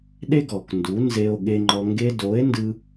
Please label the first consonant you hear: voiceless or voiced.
voiced